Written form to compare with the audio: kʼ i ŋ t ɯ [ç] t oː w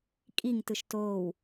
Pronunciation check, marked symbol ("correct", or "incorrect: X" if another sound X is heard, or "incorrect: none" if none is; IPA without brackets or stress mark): incorrect: ʃ